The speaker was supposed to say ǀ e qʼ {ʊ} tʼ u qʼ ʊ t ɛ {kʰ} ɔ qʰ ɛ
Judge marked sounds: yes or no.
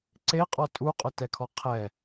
no, yes

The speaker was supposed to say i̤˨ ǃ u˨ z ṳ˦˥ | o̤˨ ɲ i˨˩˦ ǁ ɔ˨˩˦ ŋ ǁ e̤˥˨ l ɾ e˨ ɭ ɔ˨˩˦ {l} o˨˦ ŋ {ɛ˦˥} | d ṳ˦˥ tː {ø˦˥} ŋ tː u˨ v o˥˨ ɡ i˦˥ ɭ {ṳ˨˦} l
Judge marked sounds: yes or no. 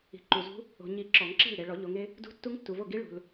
no, no, no, no

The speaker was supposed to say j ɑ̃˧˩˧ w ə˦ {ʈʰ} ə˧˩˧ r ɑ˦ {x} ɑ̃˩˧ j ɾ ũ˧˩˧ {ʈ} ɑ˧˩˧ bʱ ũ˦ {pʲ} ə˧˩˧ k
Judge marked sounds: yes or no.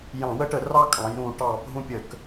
no, no, yes, yes

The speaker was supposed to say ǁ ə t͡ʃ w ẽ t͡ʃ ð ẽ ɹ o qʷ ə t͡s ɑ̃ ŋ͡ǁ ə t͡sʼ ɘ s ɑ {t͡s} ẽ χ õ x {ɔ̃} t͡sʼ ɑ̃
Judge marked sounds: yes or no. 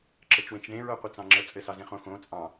no, no

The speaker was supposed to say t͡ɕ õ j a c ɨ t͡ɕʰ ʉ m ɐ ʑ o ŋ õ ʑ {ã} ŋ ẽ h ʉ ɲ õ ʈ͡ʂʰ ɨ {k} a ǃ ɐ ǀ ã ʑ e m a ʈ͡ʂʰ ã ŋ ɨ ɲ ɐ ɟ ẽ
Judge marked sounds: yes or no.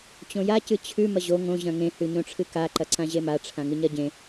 no, yes

